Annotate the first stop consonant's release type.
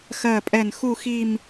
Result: ejective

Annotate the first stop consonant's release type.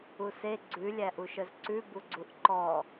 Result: click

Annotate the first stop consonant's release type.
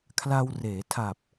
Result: aspirated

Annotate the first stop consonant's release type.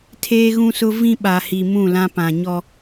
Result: aspirated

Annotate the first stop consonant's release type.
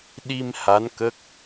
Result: implosive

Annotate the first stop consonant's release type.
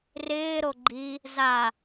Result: click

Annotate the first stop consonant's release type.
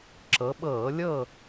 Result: click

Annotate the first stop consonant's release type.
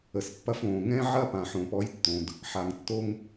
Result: plain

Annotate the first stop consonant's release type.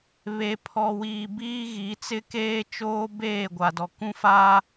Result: aspirated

